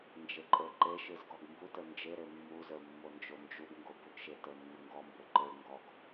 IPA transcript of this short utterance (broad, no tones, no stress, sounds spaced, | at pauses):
n d͡ʒ e ǃʼ ə˞ ǃ e ʃ ɯ z ɡ ɔ ɡ m b u t ə˞ n d͡ʒ e ɾ e mː u z ə˞ mː o n d͡ʒ o n d͡ʒ u b ŋ ɡ o b u ɡ ʃ e t ə˞ nː ə ŋ ɡ ɔ m b ə˞ ǃ ə˞ ŋ ɡ ɔ ɡ